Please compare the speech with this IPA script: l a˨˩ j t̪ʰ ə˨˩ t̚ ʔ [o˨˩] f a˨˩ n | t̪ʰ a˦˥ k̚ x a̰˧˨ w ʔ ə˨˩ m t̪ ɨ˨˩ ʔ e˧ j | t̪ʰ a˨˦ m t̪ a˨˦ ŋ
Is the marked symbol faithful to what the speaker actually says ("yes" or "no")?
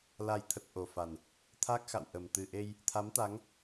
yes